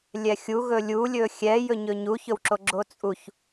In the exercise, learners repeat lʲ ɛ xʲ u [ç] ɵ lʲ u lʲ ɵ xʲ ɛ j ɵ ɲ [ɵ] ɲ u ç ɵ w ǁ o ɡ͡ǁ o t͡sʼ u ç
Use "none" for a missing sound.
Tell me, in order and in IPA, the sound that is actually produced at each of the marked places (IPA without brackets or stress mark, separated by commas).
ɣ, ɵ